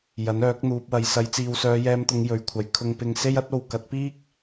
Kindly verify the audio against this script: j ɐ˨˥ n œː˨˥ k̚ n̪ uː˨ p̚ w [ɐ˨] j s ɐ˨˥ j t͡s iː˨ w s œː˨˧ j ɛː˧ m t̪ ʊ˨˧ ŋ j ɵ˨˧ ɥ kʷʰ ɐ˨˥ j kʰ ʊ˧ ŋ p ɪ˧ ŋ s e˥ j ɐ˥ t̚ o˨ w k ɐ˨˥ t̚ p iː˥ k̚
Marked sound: correct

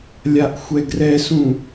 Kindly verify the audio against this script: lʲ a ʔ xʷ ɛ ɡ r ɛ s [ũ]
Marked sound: correct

